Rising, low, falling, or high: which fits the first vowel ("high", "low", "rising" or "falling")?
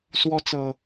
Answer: high